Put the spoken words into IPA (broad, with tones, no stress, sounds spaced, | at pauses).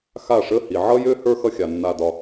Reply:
x a˥˩ ʂ ə˧˥˧ h i˩ ʕ ʌ˥ j ø˥ h ə˞˥ x ʌ˥ xʲ a˩ nː a˧˩ d ɒ˧˩